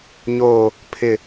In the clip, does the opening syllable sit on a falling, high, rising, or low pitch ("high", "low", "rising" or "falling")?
low